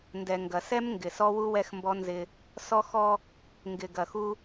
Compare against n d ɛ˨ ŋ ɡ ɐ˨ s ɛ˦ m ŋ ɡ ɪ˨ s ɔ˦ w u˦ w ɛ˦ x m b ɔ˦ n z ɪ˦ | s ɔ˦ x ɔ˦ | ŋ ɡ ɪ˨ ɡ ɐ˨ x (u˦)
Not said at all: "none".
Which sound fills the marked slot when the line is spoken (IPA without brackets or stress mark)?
u˦